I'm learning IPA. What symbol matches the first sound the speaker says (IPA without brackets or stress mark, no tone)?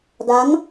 d